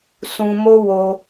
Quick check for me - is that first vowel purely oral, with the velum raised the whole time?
no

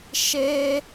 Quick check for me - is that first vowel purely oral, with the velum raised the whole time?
yes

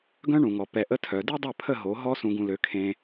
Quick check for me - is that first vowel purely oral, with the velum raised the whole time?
no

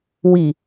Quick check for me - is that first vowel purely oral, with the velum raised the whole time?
yes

